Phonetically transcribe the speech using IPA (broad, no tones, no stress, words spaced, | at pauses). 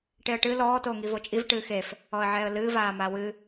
ʈeə̯ʈɨ lɔː toːŋivot͡ʃʼiv ʈɨːxef | ɔə̯ʕɛːə̯lɨː vaːmawɨ